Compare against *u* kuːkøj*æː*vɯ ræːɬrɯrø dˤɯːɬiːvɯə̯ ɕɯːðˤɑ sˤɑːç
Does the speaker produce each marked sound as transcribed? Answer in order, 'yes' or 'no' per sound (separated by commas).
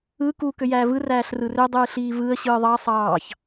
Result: no, yes